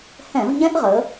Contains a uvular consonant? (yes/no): yes